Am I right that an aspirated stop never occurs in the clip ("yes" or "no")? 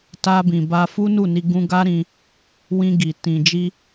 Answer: yes